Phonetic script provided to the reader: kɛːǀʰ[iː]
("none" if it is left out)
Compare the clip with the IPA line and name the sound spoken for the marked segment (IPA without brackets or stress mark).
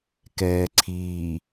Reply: iː